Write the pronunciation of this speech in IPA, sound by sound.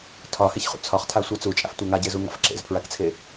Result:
tʰ ɒ h e ç χ ṵ t͡sʰ ɒ χ tʰ a sʷ a t͡s u t͡ʃʼ a̰ f tʷ a ŋ a ɟ e z u ŋ a̰ f ǁ ḛ z pʰ ɹ a k t͡sʰ e

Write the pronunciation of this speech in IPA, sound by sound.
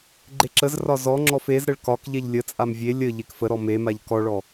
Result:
ɡ͡ǃ e ǁ ə z r ɒ z ɔ ŋ͡ǁ ɔ f e z ɾ ə ɭ k ɒ k ʎ ɛ ʎ lʲ ə t͡sʼ a m vʲ e lʲ ə ʎ e k f ə ɾ ɔ m e m a ʎ k ɔ ɭ ɔ

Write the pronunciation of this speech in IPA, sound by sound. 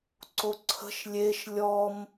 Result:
ǀ o ǀʰ ə̤ ʃ lʲ e ʃ lʲ ɔ m

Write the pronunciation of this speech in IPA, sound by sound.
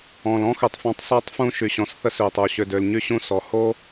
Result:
ɔ̃˩ l ɔ̃˥ x ø˩ tˤ f ɔ̃˧ tˤ s ɔ˧ tˤ f ũ˧ ʃ y˩ ɕ ɔ̃˩ s θ ə˧ s ø˩ tˤ o˩ ɕ ø˩ d ø˩ l ɲ y˧ ɕ ũ˧ s ɔ˩ h o˥

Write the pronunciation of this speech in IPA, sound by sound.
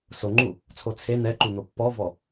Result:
s o ŋ͡ǃ u | t͡sʰ o t͡sʰ e n̪ ɛ ǃ u n̪ o pː ɔ v ɔ

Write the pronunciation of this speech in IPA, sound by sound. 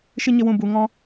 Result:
ʃ ɨ˦ ɲ ə˦ w ũ˧ b u˨ ŋ ɔ̃˦

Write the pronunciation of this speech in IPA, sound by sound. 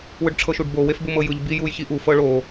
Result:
w ɯ ɖ ʈ͡ʂʰ ɤ ʃ u ɖ b o w e f b u m ɤ j ɯ ʎ b i j u j ç i ʔ u f ɤ ɭ o

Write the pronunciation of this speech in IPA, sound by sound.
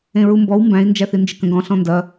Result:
ẽ ɹ u m b ɔ w m b æ̃ i̯ n d͡ʒ æ θ i n d͡ʒ ɪ k ə̃ ɡ ɔ̃ ɬ ɔ̃ n d ɐ

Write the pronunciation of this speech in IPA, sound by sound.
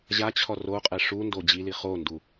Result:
ʑ a t͡ɕʰ ɔ r o qʼ ɛ ʂ u n d o d͡ʑ i l i χ o n d u

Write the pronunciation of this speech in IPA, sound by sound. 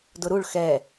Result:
d ʊ ɾ u ɭ x ɛ

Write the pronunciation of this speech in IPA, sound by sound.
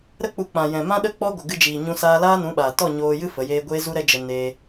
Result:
ɾ ə˦ k͡p u˧ k͡p ã˨ j ɛ̃˨ m ã˦ ɗ ə˦˨ k͡p ɔ˦ ɡʷ ə˨ ɡ ɨ˧ d͡ʒ iː˨ ɲ ũ˧ s aː˧ l aː˦ n ũ˨˦ ɓ aː˨ t ɔ˦˨ ɲ oː˧ j ɨ˦ f ə˨˦ j eː˦ ɡʷ eː˦ z u˦ ɾ ɛ˦ d͡ʒ ə˧ n e˧

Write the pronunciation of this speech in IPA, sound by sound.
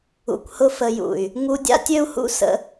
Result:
ṵ˧ kʷ h ʊ˦ f ə˧ j ṵ˨ y̯ | ŋ u˧ dʲ a̰˦ tʲ ø˦ u̯ h ṵ˦ s ə̰˦

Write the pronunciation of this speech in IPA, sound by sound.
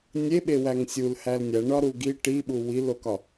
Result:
nʲ e ɓ e w æ ŋ sʲ u l h æ l nʲ æ ɳ ɒ ɾ u ɡ i ʈ i ɓ u w i l o k ɒ

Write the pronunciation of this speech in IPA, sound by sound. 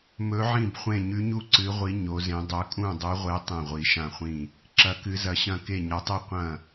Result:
m ɵ˧˥ ʕ ĩ˥˨ b χʷ ẽ˥˨ ɲ ʉ˧˥ ɲ u˥˨ ǀ ɨ˧˥ ʁʷ i˧˥ ɲ o˧˥ z ẽ˧˥ dˤ ɵ˧˥ kʼ ũ˥˨ dˤ ʉ˧˥ ʁʷ e˧˥ tˤ ẽ˥˨ ʁʷ i˧˥ ʃ ã˥˨ χʷ ĩ˥˨ | ǁ ɐ˧˥ k ɨ˧˥ z ɐ˧˥ ɕ ɐ̃˥˨ k e˥˨ ɲ ɐ˧˥ tˤ ɨ˥˨ qʷ ɐ̃˥˨

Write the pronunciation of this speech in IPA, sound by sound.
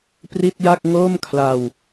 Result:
p r i˥˩ t̚ j a˥˩ k̚ ŋ oː˥˩ m kʰ l a˧ w

